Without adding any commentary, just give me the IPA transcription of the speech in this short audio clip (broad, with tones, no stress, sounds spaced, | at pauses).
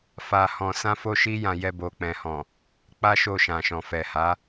f a˧ h ɔ̃˧ s ã˦ f o˦ ʃ i˦ j ã˧ j ɛ˧ b o˨ k͡p ɛ̃˨ h ɔ̃˨ | k͡p a˦ ʃ o˧ ʃ ã˨ ʃ ɔ̃˨ f ɛ˨ h a˨˦